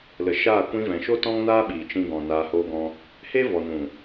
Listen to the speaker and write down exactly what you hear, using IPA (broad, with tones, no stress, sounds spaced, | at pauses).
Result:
l ə˨ ʃ aː˦˨ kʷ ĩ˧ v ɛ̃˨ ʃ o˦ t ɔ̃˦ ŋ n aː˦ ɓ iː˨ t͡ʃ ĩ˧ ɡ ɔ̃˨ n aː˧ h oː˦ ɡ ɔ̃˦ | h e˦ v ɔ˨ n ũ˨